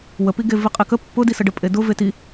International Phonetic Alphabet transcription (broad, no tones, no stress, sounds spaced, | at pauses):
w ə p i ɡ e v i qʼ e k ə pː ʊ d i s ə ɖ ə pʼ e d ʊ v e t i